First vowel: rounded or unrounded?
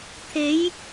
unrounded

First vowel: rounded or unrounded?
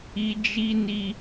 unrounded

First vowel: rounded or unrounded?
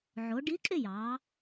rounded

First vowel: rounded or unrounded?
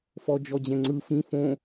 rounded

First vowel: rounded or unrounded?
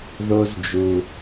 rounded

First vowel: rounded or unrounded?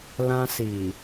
unrounded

